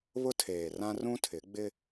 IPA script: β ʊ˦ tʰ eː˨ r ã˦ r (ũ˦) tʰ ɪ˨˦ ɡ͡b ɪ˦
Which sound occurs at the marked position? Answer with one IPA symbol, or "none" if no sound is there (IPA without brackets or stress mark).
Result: ũ˦